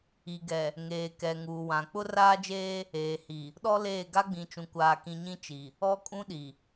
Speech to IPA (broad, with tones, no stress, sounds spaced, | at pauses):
i˨ ɡ ɛ˨ | ŋ eː˨ k ɛ˨ ŋ uː˨ w ã˨ k͡p ʊ˦ r aː˦ d͡ʒ eː˦ | eː˨ h i˨ | ɗ ɔ˦ l eː˦˨ ɡ a˦ ɡ͡b ĩ˨ t͡ʃ ũ˨ kʷ aː˨ k ĩ˨ ɲ ĩ˦ t͡ʃ i˨ | ɔ˦ kʼ ũ˦ ɗ i˨